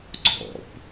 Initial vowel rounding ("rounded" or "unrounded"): rounded